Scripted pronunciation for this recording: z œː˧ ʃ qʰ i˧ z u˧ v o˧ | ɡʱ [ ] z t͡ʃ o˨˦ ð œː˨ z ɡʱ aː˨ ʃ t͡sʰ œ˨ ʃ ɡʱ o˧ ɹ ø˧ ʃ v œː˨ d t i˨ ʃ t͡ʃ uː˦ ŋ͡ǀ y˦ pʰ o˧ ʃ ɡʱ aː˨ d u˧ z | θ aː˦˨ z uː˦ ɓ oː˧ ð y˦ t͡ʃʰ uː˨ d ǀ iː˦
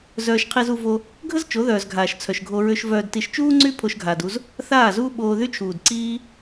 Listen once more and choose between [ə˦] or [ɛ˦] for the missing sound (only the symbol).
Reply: ə˦